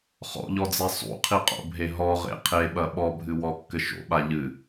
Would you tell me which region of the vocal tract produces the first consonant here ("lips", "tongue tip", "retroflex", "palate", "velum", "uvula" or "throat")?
uvula